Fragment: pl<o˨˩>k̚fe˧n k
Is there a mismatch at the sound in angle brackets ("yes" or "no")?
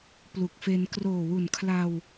yes